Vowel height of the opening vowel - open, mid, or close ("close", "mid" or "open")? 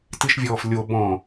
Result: close